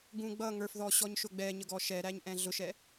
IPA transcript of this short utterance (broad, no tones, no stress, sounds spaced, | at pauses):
ɡ ũ ɡ͡b ʌ ŋ ə˞ f ð ɔ ɕ ɔ ɲ ʃ ʊ ɡ͡b ɛ ɲ ə ɡ ɔ ʃ ɛ ɾ æ ɲ ʔ ɛ̃ ɮ ʊ ʃ ɛ